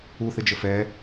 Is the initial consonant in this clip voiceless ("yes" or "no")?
yes